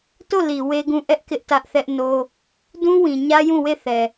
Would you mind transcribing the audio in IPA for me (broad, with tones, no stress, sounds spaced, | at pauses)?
t o˦˨ l i˨ w e˦ ɡ ũ˦˨ ʔ ɛ˦ ʔ k ɪ˦ ʔ t ä˦ ʔ θ ɛ˦ ʔ n o˦ | d ũ˦ w ĩ˨ ɲ ä˦ j ũ˦˨ w e˦˨ θ ɛ˨